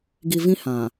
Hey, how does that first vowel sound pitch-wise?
low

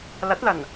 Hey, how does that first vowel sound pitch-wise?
rising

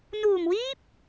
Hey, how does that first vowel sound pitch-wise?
low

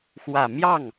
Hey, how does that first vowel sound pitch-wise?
low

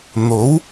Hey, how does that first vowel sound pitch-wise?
rising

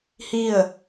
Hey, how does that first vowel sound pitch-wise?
falling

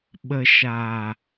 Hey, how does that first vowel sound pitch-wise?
low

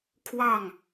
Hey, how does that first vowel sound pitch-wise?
falling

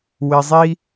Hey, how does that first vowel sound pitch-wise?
low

